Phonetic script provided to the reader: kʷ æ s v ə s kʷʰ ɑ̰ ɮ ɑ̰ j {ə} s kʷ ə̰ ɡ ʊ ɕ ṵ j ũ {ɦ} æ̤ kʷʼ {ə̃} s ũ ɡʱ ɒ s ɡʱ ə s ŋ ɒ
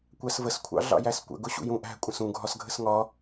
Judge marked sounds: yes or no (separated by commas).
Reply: no, no, yes